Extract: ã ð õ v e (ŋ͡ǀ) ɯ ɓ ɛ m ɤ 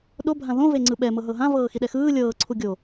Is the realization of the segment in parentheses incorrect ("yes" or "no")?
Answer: no